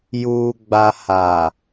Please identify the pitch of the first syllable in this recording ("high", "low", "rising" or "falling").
low